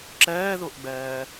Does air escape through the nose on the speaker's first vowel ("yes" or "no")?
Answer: no